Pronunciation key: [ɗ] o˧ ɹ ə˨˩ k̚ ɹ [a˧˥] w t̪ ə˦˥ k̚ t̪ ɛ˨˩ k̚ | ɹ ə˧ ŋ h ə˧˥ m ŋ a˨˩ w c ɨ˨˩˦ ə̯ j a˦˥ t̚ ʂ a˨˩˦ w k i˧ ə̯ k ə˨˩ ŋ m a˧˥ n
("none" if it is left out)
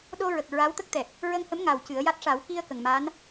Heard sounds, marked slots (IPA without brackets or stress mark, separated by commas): ɗ, a˧˥